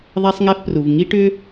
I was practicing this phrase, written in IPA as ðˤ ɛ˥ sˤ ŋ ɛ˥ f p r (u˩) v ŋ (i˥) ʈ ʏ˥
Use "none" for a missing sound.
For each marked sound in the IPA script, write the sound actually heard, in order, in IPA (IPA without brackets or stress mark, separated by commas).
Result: u˩, i˥